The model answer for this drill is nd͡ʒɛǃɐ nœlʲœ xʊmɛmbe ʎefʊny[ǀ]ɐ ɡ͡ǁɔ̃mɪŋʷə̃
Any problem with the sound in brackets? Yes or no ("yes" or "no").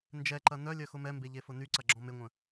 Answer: no